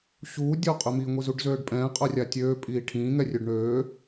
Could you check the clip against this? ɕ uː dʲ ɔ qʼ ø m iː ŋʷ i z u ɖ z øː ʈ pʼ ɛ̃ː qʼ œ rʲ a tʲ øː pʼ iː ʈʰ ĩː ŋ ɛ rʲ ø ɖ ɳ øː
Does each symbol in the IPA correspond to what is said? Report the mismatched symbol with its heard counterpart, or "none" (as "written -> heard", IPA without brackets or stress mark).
ʈ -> ɖ